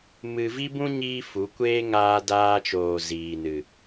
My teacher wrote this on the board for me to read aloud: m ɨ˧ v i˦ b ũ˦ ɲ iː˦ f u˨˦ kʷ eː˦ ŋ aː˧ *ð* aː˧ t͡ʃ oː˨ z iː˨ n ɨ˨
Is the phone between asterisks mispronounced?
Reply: yes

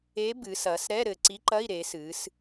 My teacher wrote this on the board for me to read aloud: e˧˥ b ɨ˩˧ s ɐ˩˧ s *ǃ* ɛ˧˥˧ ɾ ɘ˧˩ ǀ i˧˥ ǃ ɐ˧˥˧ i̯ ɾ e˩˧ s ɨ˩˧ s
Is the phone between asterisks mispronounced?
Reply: yes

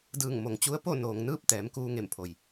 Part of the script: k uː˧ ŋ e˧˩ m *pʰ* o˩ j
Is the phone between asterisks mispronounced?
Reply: no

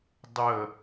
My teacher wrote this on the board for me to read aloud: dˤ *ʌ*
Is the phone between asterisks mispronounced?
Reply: yes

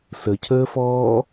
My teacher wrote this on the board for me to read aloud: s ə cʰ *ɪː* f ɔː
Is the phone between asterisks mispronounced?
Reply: yes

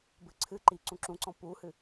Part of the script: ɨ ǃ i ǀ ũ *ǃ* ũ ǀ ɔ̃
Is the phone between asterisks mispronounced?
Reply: yes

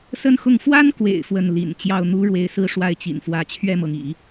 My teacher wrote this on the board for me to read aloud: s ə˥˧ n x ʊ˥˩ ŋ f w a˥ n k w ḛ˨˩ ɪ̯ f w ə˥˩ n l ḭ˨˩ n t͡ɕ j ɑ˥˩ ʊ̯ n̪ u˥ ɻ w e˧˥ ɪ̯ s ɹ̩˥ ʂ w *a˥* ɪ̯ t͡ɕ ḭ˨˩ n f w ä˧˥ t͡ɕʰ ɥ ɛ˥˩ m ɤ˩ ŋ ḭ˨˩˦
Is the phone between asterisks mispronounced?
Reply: no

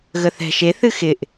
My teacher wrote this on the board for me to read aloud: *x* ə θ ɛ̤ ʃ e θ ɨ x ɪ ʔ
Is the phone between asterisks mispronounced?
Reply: yes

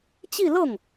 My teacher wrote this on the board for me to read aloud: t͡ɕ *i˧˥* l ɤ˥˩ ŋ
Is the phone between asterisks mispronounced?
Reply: yes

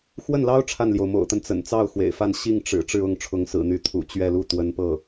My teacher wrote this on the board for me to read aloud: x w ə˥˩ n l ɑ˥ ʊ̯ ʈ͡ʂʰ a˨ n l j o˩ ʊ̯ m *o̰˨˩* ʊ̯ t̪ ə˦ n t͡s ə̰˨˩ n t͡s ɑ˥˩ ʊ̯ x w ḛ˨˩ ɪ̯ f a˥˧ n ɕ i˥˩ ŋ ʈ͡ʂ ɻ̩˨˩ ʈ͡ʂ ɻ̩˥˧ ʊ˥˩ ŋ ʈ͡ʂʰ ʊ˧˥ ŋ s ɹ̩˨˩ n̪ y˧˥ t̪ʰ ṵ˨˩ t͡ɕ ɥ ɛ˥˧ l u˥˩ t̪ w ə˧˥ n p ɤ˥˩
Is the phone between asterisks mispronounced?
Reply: no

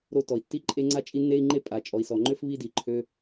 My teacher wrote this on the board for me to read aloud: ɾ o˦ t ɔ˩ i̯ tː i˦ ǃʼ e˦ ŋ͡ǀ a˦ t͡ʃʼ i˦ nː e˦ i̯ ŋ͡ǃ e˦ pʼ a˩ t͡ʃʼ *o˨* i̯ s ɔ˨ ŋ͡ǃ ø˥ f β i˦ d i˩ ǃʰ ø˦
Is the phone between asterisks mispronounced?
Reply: yes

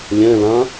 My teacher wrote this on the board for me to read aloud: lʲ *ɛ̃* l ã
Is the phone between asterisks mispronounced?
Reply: no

